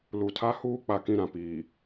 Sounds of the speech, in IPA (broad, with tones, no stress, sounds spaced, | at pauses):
l u˨ tʰ a˦ h uː˦ k͡p a˨ k ĩ˦˨ ɾ ã˨ p iː˨